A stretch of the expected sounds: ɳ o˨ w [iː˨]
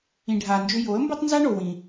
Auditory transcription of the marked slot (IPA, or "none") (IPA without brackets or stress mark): ĩː˨